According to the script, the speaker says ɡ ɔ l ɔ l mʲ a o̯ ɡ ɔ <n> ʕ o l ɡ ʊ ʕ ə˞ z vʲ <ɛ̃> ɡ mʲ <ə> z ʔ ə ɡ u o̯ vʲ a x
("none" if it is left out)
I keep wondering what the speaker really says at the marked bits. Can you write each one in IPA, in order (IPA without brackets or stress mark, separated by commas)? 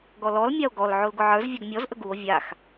l, ɛ, ɔ